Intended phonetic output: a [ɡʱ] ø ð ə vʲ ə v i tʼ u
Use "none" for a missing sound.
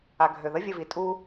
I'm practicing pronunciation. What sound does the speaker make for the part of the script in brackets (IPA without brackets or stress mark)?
ɡʱ